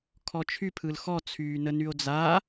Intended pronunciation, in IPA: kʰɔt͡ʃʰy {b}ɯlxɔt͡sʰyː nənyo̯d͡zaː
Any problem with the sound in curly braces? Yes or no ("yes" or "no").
yes